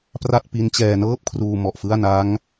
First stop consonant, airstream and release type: plain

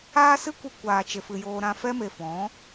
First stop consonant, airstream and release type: plain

